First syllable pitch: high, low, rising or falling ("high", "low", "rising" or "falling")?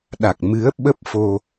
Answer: low